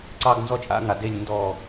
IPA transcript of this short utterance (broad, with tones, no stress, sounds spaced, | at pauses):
ǀ ɑ˥˧ ɡ n z ɔ˥˧ t͡ʃʼ a̰˥˧ ŋ a˩ d e˧˩ lʲ n d ɔ˧˩